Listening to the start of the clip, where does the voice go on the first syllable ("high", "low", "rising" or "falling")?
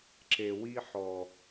low